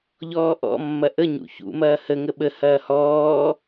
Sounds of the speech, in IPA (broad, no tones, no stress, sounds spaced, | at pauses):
ʎ ɔː ʔ ɔ̰ mː ɐ ʔ ə ɲ ṵ ç ṵ m ɐː h ə ŋ ə ɓ ə h ɐː h ɔː